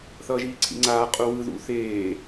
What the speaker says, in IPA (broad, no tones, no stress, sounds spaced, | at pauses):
θ ʌː ʒ iː ǀʰ ḭ ŋ͡ǀ aː qʼ u w ɯ ð ṵ θ eː